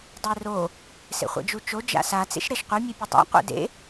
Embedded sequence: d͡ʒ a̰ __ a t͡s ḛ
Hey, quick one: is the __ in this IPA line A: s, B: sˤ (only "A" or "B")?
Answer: A